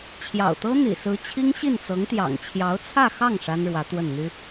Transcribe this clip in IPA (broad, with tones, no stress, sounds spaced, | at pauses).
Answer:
t͡ɕʰ j ɑ̰˨˩ ʊ̯ t̪ ɤ˥ n̪ ḭ˨˩ s ɹ̩˧˥ t͡ɕʰ i˥ ŋ ɕ i˥˩ n t͡s ɤ˧˥ ŋ t̪ j ɑ̰˨˩ ŋ t͡ɕʰ j ɑ˧˥ ʊ̯ t͡sʰ ä˥˧ x ɑ˥˩ ŋ ʂ a˥ n ɻ w ä˧˥ t̪ w ə˥˩ n n̪ y˥